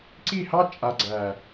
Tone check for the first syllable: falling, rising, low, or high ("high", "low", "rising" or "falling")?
falling